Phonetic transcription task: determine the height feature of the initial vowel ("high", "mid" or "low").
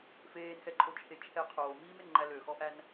mid